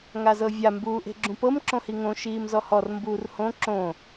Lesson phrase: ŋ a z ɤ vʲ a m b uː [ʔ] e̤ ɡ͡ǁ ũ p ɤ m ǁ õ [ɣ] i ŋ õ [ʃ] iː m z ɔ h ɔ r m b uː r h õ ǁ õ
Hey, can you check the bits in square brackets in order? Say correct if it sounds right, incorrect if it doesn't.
correct, incorrect, correct

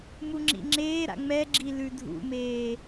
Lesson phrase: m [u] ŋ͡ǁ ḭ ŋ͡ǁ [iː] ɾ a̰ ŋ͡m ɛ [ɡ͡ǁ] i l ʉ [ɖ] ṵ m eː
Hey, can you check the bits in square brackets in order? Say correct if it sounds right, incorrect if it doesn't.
correct, incorrect, correct, incorrect

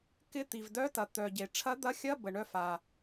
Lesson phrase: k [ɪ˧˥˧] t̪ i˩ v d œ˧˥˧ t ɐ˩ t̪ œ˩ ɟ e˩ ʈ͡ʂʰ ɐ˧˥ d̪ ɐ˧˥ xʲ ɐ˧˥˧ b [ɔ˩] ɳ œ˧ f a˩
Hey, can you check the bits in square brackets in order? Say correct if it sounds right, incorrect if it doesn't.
correct, incorrect

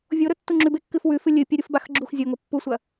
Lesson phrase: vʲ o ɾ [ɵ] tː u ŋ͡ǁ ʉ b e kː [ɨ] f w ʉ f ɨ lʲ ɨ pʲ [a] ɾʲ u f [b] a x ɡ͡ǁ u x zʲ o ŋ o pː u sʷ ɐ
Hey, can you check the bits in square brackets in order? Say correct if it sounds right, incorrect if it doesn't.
correct, correct, correct, correct

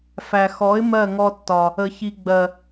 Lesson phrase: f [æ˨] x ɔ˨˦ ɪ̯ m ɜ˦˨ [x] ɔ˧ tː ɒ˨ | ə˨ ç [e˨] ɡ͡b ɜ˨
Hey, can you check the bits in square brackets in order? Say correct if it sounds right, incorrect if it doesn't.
correct, incorrect, incorrect

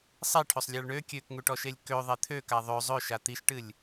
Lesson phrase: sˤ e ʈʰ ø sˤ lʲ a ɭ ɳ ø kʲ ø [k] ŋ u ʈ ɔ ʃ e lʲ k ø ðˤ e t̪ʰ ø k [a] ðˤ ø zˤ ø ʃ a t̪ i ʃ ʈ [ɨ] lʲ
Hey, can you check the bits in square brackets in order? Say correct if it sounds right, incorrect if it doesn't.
correct, correct, correct

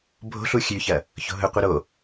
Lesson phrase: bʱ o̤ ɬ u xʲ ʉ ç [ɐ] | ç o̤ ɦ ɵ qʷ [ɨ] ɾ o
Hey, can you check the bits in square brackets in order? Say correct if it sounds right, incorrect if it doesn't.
correct, correct

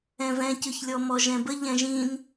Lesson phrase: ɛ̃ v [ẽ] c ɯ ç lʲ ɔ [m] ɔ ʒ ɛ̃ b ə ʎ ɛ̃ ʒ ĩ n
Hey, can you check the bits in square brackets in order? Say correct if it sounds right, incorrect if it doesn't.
incorrect, correct

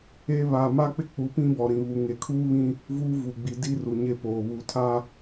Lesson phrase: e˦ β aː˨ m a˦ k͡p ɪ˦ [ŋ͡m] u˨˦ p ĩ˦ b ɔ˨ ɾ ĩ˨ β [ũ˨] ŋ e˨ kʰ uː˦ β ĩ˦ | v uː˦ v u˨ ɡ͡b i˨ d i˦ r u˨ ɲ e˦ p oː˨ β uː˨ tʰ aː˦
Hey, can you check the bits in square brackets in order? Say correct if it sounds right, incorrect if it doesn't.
incorrect, incorrect

